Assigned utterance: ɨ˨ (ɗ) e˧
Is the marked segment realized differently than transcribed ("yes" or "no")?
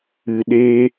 no